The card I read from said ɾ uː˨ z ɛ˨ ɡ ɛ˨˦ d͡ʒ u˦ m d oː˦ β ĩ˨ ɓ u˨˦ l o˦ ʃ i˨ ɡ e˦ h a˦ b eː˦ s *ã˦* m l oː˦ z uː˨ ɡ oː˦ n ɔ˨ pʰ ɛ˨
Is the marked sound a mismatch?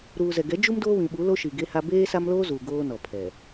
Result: yes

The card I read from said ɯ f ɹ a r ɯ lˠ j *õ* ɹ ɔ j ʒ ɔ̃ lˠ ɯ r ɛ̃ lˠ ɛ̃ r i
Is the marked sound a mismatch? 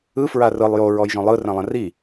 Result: yes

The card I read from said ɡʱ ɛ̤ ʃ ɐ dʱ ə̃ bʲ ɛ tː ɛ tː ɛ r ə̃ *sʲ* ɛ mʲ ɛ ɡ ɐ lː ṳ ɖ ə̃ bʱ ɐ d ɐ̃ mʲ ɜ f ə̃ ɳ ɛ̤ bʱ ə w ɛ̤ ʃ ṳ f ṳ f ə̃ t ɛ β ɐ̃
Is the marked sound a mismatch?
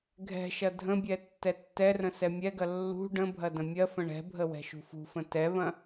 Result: yes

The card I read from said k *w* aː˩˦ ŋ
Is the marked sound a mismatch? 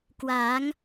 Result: no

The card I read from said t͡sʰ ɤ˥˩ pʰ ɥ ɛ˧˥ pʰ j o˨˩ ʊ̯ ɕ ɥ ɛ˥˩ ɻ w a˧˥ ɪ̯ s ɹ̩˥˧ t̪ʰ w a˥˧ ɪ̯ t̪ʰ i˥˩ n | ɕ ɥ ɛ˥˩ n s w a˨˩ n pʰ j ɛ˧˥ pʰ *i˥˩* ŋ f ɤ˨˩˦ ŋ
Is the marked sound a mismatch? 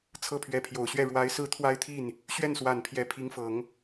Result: yes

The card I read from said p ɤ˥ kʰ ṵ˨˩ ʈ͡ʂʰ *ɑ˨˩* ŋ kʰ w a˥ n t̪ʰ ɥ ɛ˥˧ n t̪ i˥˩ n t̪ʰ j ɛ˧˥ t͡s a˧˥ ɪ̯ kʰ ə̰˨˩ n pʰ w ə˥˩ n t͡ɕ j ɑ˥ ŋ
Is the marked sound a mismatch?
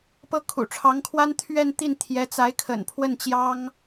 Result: yes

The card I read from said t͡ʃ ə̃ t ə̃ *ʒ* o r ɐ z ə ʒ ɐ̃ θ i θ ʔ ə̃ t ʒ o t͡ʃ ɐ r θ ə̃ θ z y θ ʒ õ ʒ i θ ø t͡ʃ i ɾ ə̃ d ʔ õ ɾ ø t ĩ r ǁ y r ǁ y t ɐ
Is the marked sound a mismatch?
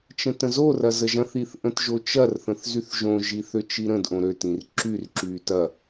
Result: yes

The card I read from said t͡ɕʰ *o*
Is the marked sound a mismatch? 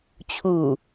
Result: yes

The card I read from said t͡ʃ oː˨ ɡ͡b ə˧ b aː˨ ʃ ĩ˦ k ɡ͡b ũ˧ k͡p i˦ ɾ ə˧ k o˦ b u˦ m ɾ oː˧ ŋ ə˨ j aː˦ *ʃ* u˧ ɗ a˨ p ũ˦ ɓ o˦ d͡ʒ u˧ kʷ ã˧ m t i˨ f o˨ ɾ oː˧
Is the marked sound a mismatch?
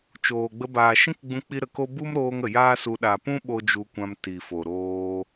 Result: yes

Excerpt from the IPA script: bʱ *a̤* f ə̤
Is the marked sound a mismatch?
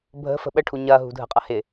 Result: yes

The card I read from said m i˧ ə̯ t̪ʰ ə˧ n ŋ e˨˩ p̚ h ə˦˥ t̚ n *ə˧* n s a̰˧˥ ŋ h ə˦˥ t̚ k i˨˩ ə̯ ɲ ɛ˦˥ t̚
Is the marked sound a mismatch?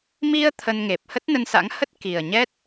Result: no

